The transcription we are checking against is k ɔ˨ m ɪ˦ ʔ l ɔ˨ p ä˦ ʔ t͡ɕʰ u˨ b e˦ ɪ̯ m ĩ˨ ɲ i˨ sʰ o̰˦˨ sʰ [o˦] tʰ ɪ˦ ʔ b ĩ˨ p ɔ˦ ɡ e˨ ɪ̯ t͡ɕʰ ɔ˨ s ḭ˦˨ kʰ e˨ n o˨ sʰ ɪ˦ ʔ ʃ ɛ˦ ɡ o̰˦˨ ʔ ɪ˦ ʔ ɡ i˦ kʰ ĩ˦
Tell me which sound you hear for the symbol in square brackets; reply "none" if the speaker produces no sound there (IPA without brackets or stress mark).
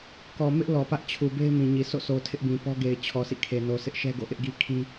o˨